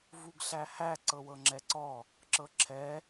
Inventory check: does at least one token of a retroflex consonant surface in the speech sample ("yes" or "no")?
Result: no